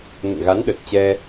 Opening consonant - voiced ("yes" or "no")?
yes